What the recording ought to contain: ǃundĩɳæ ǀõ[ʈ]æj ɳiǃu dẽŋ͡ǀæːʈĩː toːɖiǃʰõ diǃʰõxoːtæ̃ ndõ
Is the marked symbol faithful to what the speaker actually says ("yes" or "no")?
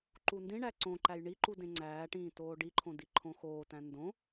no